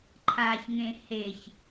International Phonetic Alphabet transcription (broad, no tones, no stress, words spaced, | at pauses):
ǃʰaçŋẽ heç